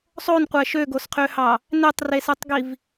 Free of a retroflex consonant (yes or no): yes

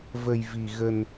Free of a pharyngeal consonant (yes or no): yes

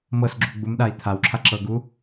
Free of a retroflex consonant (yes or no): yes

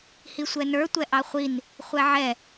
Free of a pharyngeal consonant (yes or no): no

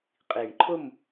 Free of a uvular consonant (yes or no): no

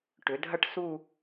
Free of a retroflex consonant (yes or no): no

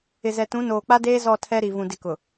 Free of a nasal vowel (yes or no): no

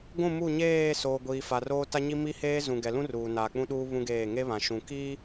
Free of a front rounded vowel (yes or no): yes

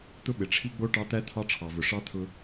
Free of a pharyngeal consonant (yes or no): yes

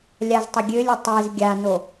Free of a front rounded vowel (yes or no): no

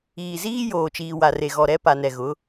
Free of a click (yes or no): yes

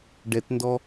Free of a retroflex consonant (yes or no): no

